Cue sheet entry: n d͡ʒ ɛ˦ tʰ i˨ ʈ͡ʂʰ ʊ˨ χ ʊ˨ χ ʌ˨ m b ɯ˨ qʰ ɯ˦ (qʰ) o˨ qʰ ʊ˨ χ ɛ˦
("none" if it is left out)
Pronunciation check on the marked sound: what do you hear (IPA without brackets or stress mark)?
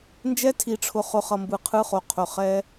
χ